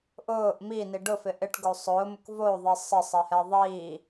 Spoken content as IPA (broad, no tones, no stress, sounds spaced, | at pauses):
ʔ ʊː ʔ m i n i ɖ ʊ f ɪ ʔ ɪ ʈ ɡ o sˤ ʊː m ʊ k v o ðˤ i sˤ ɪ sˤ ɛ h ɛ ðˤ iː